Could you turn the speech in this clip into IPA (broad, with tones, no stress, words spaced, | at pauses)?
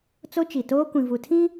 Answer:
t͡so˦t͡ʃi˨toː˦ kʷĩ˨vu˨tʰĩ˦